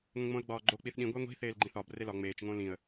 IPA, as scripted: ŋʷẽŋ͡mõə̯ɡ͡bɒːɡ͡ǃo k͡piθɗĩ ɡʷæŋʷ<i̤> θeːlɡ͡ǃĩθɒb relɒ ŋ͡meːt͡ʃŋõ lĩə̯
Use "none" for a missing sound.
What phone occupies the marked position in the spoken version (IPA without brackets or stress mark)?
i̤